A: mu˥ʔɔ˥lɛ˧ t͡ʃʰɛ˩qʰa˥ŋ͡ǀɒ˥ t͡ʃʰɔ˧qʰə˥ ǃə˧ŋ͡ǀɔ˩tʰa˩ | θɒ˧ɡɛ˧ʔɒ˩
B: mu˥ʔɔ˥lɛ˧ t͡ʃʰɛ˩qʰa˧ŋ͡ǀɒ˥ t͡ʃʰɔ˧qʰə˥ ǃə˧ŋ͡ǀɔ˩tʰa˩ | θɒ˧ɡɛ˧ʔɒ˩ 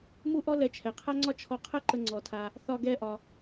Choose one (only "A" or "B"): A